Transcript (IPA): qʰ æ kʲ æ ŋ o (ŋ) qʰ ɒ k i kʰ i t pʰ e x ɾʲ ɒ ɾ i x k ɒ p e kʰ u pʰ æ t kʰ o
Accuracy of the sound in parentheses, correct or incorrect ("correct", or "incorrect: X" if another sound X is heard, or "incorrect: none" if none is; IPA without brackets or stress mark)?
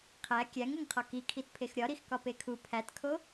correct